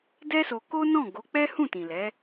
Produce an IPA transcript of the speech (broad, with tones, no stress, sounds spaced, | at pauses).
d ɛ˦ s o˧ k o˦ n ɔ̃˦˨ ɡ o˨˦ k͡p ɛ˦ h ũ˦˨ t ĩ˨ l ɛ˨˦